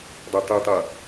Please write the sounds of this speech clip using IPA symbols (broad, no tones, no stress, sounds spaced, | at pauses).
dˤ ɜ tˤ u tˤ ʌ